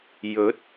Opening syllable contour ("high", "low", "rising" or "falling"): rising